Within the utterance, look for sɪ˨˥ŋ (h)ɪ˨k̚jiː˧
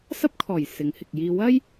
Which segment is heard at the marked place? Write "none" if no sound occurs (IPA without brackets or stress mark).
h